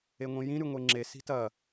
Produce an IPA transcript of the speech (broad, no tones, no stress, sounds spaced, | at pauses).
e ŋʷ ĩ j ĩ ɾ ʉ ŋʷ e ŋ͡ǁ e s i̤ t ɐ